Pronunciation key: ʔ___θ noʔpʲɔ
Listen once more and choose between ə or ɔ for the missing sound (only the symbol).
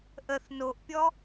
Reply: ə